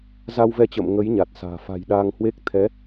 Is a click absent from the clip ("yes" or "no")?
yes